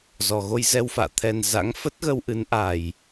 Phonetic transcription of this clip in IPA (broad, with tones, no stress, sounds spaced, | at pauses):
z ɔ˨˩ ɣ o˧ j z ɛ˧ w f a̰ː˧˨ t̪ʰ ɛ˨˩ n z a̰˧˥ ŋ f ə˦˥ t̚ ɣ ə˧ w ʔ ɨ˨˦ n ʔ a˨˩ j